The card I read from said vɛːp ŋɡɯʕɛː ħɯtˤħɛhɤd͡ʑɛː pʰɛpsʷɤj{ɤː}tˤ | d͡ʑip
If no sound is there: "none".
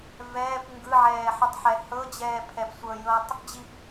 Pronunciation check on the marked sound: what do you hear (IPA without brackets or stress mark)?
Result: ɤː